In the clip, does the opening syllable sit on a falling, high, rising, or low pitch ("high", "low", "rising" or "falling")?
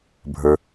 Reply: low